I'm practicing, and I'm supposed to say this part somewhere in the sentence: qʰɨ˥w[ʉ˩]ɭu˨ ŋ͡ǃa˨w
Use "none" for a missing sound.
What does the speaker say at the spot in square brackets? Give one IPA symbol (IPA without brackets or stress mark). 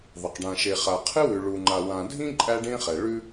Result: ʉ˨